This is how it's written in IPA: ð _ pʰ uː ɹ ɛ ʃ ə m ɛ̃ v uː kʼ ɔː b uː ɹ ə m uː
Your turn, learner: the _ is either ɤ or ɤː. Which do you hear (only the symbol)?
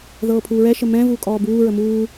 ɤː